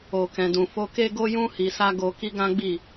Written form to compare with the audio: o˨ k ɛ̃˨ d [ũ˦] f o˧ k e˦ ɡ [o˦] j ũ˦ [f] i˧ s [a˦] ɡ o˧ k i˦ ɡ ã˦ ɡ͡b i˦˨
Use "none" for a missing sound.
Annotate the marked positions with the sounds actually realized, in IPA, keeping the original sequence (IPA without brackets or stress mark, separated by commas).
ũ˨, o˦, h, a˦